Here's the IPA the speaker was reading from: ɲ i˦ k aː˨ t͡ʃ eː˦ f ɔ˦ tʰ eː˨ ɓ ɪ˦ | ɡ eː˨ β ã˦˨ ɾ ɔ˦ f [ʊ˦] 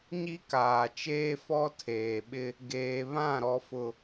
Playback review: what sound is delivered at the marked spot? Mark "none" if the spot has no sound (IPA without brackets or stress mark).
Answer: ʊ˦